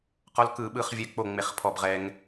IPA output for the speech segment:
q ɔ˦˥ l k ɯ˦˨ ɓ ɯ˦˥ χ vʲ ɛ˦˨ k͡p o˦˨ ŋ͡m e˦˨ χ pʰ ɔ˦˨ b ʁ ɛ˦˥ ŋ

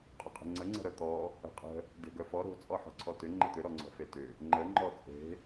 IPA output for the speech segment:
qʼ ʏ qʼ ə̤ ŋ͡ǀ ə ŋ͡ǀ ə̤ ɾ œ t̪ ɔ | ə̤ qʼ ə̤ | d e̤ ɡ œ f ɔ ɾ o̤ t͡sʼ ɔ ħ ɔ̤ ǀʰ ɔ t ʏ ŋ͡ǃ ə t̪ ʏ ɾ ɔ ŋ͡ǀ ɔ̤ f e t ʏ | ŋ͡ǃ ə ŋ͡ǃ ɔ t͡sʼ e̤

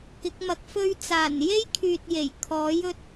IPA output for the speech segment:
k ɪ˨˥ k̚ m ɐ˨ k̚ f ɵ˥ ɥ t͡s aː˨˩ n j e˥ j kʰ yː˨ t̚ j e˨˩ j kʰ ɔː˨˥ j ɵ˥ t̚

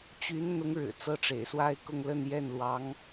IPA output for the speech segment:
t͡ɕ y˧˥ n n̪ ʊ˧˥ ŋ ɻ ɻ̩˨˩ t͡s ɤ˥˩ ʈ͡ʂ ḛ˨˩ ɪ̯ s w a˥ ɪ̯ k ʊ˥˧ ŋ l ə˥˧ n j ɛ˥˩ n l w ɑ˧˥ ŋ

